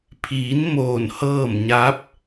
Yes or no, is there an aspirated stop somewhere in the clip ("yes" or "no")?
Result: yes